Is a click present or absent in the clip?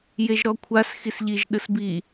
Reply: absent